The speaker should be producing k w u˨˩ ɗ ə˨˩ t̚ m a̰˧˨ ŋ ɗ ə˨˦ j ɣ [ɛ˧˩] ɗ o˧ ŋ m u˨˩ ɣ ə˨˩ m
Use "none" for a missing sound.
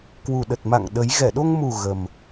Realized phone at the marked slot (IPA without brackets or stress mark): ɛ˧˩